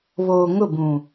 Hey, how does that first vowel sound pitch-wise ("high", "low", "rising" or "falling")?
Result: low